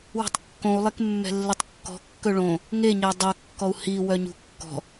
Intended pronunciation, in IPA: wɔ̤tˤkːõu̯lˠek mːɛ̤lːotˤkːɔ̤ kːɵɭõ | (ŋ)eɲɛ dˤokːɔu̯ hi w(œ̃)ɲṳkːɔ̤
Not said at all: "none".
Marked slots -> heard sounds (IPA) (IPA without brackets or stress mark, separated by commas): ŋ, œ